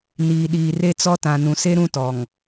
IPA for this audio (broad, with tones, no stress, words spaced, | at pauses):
niː˨ɗiː˨re˦t͡sɔ˦ tã˨ nũ˨se˦ɾũ˦tɔ˨ŋ